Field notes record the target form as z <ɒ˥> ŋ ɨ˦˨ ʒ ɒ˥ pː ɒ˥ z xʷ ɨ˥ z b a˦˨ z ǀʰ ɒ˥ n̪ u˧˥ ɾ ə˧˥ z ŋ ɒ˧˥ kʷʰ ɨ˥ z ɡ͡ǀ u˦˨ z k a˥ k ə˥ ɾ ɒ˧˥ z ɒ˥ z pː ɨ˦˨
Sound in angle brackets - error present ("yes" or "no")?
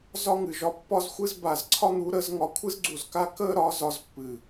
no